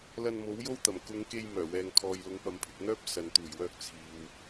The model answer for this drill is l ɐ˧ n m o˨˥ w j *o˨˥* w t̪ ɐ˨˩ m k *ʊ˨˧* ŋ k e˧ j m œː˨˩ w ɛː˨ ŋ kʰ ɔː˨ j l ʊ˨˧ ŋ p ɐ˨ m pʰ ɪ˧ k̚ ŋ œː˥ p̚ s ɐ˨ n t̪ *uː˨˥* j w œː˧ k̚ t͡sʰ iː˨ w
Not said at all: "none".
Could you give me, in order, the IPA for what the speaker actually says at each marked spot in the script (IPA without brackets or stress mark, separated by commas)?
o˥, ʊ˨˧, uː˨˩